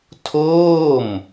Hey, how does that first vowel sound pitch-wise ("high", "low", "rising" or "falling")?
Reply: falling